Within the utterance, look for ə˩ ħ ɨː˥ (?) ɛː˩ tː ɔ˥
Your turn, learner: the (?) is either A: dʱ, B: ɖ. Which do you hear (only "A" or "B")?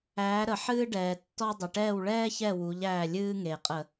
B